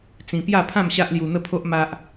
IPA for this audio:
t͡s ĩ˧ p j a˥˧ pʰ ã˥˧ m ɕ a˦ ʔ l j u˧ n̪ ə˥˧ pʰ o˦ ʔ m a˦ ʔ

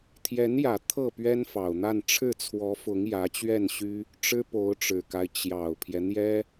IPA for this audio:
t̪ʰ j ɛ˧˥ n j ä˨˩ t̪ʰ ɤ˥˩ p ɥ ɛ˥ n f ɑ˨˩ ʊ̯ n̪ a˥˧ n ʈ͡ʂʰ ɻ̩˥˩ t͡sʰ w ɔ˧˥ f ʊ˧˥ ŋ j ä˧˥ t͡ɕ ɥ ɛ˥˩ n ɕ y˥ | ʈ͡ʂ ɻ̩˥ p o˧˥ ʊ̯ ʈ͡ʂ ɻ̩˨˩ k a˦ ɪ̯ t͡ɕ j ɑ˨˩ ʊ̯ pʰ j ɛ˦ n̪ j ɛ˥

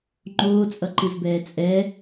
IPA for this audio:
ŋ͡ǃ oː t͡sʼ ʌ ǃ ɯ z b ɛː t͡sʼ ɛ

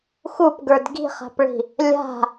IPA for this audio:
x u p ɡ ə˞ d ɡ i̤ χ a̤ p ɭ i̤ | lʲ a̤

